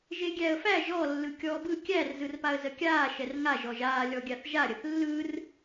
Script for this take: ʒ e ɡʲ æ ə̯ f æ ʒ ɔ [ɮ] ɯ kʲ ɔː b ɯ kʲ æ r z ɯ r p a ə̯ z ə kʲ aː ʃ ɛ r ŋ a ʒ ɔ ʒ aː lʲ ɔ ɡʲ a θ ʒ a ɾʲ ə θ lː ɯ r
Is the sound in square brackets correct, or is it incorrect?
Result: incorrect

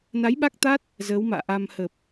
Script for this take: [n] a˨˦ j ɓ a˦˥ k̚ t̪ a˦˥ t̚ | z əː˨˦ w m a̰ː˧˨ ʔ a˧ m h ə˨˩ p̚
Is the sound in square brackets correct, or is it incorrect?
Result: correct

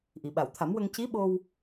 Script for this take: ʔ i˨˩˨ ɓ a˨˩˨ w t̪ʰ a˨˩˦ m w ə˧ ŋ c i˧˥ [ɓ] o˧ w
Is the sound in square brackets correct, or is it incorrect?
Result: correct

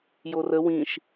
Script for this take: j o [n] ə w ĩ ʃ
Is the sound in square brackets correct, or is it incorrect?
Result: incorrect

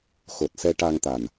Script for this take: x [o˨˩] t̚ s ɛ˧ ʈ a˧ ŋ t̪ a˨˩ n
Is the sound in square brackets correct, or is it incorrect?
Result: correct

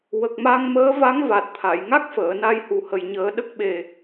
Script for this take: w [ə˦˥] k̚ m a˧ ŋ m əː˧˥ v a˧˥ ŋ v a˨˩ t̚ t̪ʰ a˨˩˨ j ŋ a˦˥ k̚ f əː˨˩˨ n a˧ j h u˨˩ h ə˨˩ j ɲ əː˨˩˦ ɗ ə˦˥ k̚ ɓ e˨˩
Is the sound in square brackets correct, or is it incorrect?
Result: incorrect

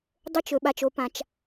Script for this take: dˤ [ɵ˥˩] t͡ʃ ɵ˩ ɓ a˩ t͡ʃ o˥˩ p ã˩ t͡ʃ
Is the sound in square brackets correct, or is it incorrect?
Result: correct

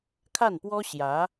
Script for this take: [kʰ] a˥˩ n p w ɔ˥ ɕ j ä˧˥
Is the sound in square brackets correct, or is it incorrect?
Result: correct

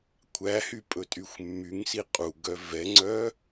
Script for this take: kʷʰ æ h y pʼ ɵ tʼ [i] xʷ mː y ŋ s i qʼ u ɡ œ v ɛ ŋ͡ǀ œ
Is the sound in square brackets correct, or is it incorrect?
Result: incorrect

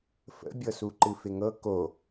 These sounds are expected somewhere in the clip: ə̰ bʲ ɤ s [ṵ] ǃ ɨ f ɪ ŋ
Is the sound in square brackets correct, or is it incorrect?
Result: incorrect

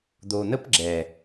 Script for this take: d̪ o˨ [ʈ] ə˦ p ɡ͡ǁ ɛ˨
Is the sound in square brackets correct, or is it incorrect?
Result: incorrect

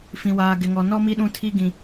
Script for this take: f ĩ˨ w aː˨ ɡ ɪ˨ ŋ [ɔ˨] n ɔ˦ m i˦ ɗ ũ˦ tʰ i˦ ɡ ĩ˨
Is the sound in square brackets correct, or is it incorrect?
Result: correct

